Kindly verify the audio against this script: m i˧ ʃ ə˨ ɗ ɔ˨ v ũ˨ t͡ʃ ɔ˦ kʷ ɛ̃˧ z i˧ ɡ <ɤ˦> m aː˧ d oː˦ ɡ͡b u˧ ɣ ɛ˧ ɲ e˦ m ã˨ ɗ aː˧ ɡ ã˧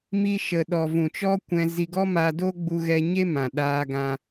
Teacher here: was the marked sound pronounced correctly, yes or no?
no